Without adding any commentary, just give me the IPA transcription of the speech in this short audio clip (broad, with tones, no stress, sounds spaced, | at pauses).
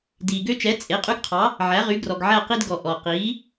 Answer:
d iː˩ ɡ ø˦ t͡ʃ ɛ˩˥ t͡sʼ e˩˥ qʼ y˦ ɡ qʰ ɑ˩˥ | ʕ æ˩˥ ʁ y˩˥ ɡ r ɔ˩ ɡ ʕ æ˦˨ q i˦ d ɡ ɔ˩ ʔ ɔː˩ q iː˩˥